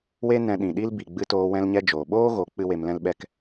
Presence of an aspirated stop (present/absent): absent